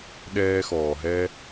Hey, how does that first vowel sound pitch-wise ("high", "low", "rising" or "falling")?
high